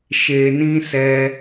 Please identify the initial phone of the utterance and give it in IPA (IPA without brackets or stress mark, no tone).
ʃ